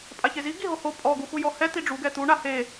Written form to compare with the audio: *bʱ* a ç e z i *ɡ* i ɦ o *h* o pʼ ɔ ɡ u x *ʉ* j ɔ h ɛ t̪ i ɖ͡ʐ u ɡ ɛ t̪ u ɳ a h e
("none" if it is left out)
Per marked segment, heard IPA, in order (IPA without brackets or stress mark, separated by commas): pʼ, ɡ, h, u